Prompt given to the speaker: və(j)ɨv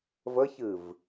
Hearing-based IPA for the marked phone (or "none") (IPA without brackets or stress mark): ç